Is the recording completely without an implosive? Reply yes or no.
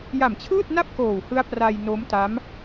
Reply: yes